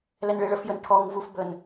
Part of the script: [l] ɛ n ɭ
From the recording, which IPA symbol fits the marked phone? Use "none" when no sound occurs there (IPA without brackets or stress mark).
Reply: l